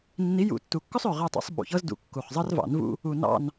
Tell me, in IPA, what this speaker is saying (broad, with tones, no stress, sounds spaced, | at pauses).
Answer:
nː i˨˦ j ṵ˨˩˦ tː u˨˩ kː ɵ˥ sˤ ø˨˩ ʁ ɛ˦˨ tˤ ṵ˨˦ sˤ ɓ ṵ˨˩ ç ɤ˥ z d ṵ˨˦ kː u˨˩ χ zˤ ɤ˥ r v ɑ̰˨˩˦ n v ṵ˥ | u˨˩ n ɑ̰˦˨ n